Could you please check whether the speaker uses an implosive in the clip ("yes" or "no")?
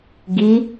no